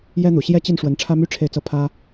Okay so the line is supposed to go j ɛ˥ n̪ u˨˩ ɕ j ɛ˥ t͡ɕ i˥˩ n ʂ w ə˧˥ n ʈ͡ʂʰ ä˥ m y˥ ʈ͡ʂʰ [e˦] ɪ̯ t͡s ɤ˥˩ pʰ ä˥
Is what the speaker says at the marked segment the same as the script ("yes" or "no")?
no